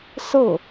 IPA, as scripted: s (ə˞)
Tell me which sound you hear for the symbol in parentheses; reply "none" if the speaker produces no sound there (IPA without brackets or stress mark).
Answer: ɤ